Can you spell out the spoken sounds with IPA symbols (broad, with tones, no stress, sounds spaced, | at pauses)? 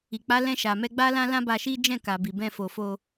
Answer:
i˨ k͡p a˨˦ l ɛ̃˧ ʃ a˨ m ɛ˧ ɡ͡b a˦ l ã˦ l ã˦ b a˧ ʃ i˦ d͡ʒ ɛ̃˦˨ k a˨ b i˨ b ɛ̃˧ f o˨ f o˧